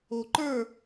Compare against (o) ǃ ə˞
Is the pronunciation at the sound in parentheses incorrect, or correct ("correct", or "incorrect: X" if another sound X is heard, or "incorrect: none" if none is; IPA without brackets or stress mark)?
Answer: correct